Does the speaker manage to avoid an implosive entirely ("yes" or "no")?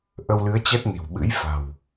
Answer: no